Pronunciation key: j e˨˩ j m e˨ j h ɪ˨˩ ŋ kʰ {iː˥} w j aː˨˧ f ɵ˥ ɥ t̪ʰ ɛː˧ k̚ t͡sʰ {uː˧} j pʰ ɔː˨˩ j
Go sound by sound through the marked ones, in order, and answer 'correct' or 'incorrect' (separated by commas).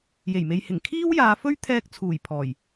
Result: correct, incorrect